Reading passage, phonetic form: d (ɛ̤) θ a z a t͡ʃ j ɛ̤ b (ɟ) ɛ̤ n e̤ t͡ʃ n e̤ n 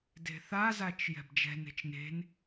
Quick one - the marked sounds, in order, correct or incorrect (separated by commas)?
incorrect, incorrect